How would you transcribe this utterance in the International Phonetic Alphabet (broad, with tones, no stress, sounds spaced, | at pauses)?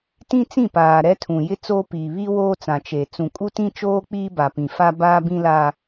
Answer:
t ĩ˦ t͡s ĩ˦˨ p aː˨ ɾ ɛ˦ tʰ ũ˨ j ɪ˦ t͡s oː˦ p iː˨ β i˦ w oː˦ t͡s ã˨ t͡ʃ e˨ t͡s ũ˨ kʼ u˦ t ĩ˦ t͡ʃ oː˦ k͡p iː˦ b a˨ p ĩ˨ f a˦ b aː˦ b ĩ˦ l a˦